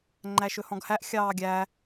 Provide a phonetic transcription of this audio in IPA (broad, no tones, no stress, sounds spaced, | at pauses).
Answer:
ŋ͡ǃ æ ʃ ɵ h ɔ̃ ɡ h æ ʔ xʲ ɑː ɡʲ æ